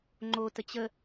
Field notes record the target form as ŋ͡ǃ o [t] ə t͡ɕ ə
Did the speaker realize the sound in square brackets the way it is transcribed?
yes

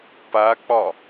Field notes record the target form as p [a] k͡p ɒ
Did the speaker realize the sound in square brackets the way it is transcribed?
yes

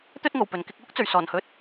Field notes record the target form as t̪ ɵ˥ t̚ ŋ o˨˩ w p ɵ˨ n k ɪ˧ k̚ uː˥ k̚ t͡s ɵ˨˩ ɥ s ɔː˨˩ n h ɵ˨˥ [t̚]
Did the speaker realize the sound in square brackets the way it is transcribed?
yes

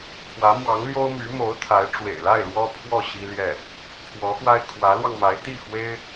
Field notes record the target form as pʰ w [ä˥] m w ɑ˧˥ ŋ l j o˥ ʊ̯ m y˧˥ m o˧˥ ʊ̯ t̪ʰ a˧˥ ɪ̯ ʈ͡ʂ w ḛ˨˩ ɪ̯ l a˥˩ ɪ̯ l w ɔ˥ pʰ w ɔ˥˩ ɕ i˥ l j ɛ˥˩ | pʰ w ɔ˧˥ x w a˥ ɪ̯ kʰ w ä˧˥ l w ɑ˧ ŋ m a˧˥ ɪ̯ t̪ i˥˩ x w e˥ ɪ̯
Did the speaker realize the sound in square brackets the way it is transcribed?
no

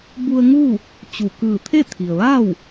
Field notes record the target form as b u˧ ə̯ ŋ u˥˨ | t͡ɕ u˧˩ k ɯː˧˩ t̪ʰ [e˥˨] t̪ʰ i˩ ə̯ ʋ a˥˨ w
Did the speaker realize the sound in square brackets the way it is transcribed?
yes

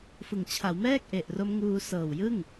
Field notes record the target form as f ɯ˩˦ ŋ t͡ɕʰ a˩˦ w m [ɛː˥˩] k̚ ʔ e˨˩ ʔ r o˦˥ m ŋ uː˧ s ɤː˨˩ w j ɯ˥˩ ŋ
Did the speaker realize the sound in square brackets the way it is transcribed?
yes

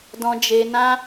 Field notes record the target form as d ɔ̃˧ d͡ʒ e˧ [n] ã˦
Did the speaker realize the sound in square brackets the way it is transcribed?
yes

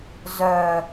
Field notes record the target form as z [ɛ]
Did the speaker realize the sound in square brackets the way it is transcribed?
no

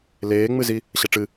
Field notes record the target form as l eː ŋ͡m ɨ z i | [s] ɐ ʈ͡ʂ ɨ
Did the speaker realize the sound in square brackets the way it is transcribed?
no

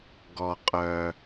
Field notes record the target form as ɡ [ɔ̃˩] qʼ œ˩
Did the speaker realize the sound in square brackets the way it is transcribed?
no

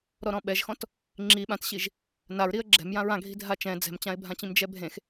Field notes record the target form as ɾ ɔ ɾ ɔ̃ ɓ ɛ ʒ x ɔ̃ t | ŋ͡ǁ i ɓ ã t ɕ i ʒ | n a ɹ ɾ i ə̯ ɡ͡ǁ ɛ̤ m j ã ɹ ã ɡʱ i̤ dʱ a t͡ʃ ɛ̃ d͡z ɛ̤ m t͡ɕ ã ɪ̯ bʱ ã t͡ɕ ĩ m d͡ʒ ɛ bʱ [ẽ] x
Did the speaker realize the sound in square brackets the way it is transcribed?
yes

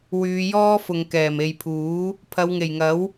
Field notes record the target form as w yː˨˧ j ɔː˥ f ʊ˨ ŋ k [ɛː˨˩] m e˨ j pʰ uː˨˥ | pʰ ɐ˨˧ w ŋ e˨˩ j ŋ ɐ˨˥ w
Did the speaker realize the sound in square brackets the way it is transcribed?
yes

